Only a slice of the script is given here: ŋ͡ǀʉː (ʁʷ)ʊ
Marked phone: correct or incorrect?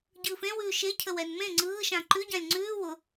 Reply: incorrect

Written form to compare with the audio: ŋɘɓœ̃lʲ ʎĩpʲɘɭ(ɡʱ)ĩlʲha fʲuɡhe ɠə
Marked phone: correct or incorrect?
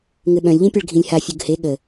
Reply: correct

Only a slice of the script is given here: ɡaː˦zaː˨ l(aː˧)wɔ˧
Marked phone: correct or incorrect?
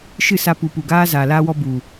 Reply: correct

